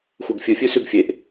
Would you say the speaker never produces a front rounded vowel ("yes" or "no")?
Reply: yes